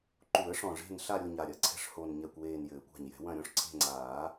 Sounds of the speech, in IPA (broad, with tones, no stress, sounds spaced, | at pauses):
ǃ u˨˩˦ ə̯ ʂ ɔ̃˨˩ ʐ e̤˦˨ n ɬ a˦˨ ɾʲ o˦˨ ɲ a˨˩ ɾʲ ɐ˨˩˦ ǀʰ ɛ̤˦˨ ʂ h o˨˩ n ɲ ɛ˨˩ kʷ w eː˨˩ n j ɘː˨˩˦ kʷ a̤˨˩ ɲ j ɛ̤˨˩˦ w ɐ̃˦˨ ɾʲ ɔ̃˦˥ ʂ ǀʰ e̤˦˨ ŋ͡ǀ aː˨˩˦